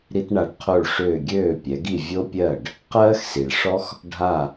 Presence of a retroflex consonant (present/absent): present